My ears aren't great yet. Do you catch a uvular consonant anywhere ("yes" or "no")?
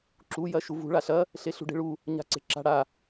no